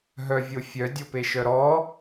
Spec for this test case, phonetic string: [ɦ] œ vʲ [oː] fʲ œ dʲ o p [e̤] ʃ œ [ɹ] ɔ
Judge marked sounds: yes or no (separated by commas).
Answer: yes, no, no, no